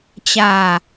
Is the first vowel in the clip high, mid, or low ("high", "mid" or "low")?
low